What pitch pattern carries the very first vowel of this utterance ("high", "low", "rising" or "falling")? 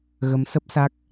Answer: rising